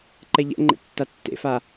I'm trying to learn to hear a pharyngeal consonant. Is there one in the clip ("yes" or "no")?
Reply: no